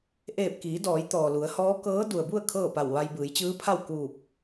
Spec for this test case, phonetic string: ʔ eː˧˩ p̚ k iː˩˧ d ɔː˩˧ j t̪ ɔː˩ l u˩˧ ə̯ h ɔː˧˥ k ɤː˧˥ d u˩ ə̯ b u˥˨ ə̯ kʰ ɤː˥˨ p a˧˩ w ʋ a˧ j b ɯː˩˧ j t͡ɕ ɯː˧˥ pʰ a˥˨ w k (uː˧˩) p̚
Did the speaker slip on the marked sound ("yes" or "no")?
no